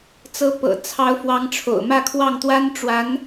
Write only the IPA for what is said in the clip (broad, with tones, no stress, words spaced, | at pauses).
t͡sɤ˧˥pɤ̰˨˩ t͡sʰɑ˧˥ʊ̯fwɑ˧˥ŋ ʈ͡ʂʰo̰˨˩ʊ̯mä˥˧kʰwɑ˥˩ŋ t̪wa˥n ʈ͡ʂwa˧˥n